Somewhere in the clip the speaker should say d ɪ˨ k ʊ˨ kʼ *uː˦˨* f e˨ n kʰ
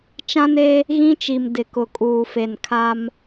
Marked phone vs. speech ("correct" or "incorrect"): incorrect